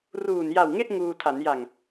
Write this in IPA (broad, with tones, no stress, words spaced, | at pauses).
ruː˨˩nja˨˩wŋe˥˩ʔ ŋuː˧tʰa˩˦n ja˨˩ŋ